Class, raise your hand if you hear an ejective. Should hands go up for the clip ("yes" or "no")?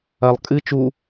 yes